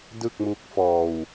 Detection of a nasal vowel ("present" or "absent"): absent